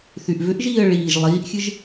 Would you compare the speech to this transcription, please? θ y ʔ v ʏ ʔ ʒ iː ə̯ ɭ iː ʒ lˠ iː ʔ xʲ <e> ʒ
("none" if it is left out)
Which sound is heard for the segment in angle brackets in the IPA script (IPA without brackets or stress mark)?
ɨ